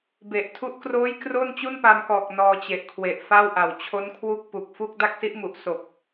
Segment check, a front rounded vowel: absent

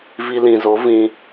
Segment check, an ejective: absent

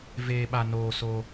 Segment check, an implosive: present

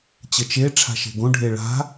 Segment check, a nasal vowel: present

